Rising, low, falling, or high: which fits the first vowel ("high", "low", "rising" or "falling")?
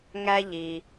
high